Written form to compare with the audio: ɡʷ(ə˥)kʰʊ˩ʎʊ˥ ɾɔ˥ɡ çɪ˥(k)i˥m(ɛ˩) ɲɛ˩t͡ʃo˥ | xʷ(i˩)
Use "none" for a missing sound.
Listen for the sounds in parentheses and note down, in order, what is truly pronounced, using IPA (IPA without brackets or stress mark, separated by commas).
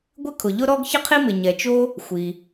ɪ˥, qʰ, ɪ˩, i˩